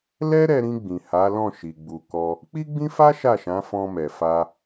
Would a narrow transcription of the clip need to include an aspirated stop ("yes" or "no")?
no